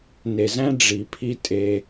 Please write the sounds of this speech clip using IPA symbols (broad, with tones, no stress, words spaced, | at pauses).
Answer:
ne˨zæ̃˦ ɖ͡ʐi˨pʰi˦ tʼe˦